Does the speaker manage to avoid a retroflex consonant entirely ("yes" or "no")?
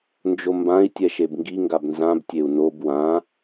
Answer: yes